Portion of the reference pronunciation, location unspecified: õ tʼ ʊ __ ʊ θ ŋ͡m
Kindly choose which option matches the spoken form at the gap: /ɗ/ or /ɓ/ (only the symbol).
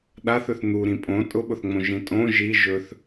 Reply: ɓ